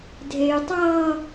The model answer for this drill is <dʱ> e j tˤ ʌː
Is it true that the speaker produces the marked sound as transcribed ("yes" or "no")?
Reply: yes